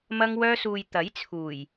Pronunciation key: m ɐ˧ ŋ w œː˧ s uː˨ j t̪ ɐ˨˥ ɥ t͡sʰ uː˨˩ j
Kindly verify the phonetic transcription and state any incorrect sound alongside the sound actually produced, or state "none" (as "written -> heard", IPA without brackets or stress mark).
ɥ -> j